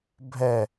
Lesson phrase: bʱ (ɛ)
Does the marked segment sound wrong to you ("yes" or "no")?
no